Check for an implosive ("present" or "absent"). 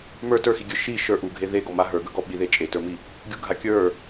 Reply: present